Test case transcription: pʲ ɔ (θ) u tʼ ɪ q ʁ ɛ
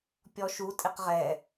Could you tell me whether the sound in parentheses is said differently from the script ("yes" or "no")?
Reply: yes